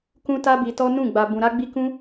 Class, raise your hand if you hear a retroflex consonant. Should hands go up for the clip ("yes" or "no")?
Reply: no